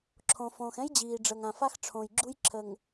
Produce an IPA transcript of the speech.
ǁʰõ˨fõː˨xɛ̃˦j d͡ʑiː˨ɖ͡ʐəː˨ŋã˨fa˦x ʈ͡ʂʰõː˨jɡ͡ǁu˦j ǁʰə˨ŋ

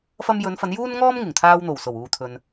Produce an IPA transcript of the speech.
fɐ˧mjɵ˨˧nfɐ˨˧n juː˥nŋɔː˥m ŋɪ˨˩ŋt̪ʰaː˥w n̪o˨˩wso˨˩w uː˨t̪ʰɵ˨n

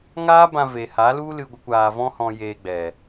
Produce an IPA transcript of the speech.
ŋaː˦bã˧ ve˨ha˨˦lu˦lɨ˧ ɡʷə˦kʷaː˧ vɔ̃˦hɔ̃˧ jeː˧ɡ͡bɛ˨

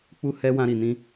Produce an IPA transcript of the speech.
k͡pu˦hɛ˦ wã˦ɾi˧nĩ˦

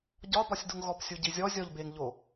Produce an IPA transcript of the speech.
ɟɒbɒsʲduŋ ɣɔpsʲuɟizʲɔ zʲɔʎbeŋʎo

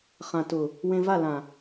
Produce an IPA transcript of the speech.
χã˨tʊ˨ | wẽ˧va˦˨ lã˨

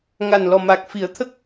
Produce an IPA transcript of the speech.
ŋa˨˩nlɔ˨˩ma˨˩k̚ fi˨˩˦ə̯t̪ʰə˦˥k̚

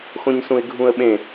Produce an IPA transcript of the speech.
xõɲsũɪ̯ɡʱũə̯ɓẽ

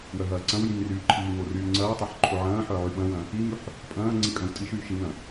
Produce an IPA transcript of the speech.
wœɦɐːǀɐ̃wjĩŋ ryːǃʰiːŋo ryːŋ͡ǀɐːtˤøħ ǃʰoʕɐ̃ːħœ ʕyɓɐ̃wɐ̃ | iŋyħ | pʼɐ̃ː ŋ͡ǀikʼœ̃wtʼiʃyːʃ iŋɐ̃

